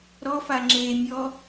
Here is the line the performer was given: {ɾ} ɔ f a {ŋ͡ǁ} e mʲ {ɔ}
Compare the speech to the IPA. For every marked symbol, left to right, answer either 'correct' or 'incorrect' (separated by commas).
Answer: correct, correct, correct